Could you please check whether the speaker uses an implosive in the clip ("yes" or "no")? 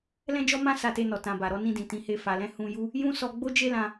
no